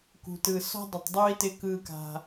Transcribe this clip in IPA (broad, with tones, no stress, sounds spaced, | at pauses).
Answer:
k ṳ˨ t ɯ˨ s ɔ̤˦ dˤ ɪ˨ tˤ dˤ u˦ i̯ t ɪ˦ k ɯ˦ k a̤˦